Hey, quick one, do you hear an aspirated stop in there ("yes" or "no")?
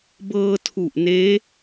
yes